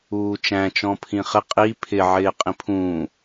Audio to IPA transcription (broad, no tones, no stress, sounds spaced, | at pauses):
uː t͡ʃ æ̃ t͡ʃ ɔ̃ pʰ ĩ χ ɪ qʼ i pʰ ɪ ʕ ɪː qʼ ĩ pʰ ũː